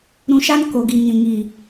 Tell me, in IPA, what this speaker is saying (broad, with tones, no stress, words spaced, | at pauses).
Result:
ɾũ˧ʃa˦n ko˨ɡi˨ ŋĩ˨ŋi˨